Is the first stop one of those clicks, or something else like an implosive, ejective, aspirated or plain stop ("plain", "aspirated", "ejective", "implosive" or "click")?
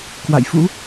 plain